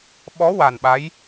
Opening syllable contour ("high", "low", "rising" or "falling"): rising